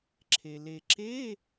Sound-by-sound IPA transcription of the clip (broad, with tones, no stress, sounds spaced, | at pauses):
ǁʰ e˩ l e˩ ǁ e˧˥˧